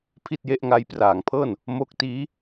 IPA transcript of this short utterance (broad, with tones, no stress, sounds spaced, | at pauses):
pʰ i˥˩ t̚ j e˦˥ ʔ ŋ a˦˥ j p r aː˩˦ ŋ pʰ ɤː˥˩ n | m o˦˥ k̚ t iː˦˥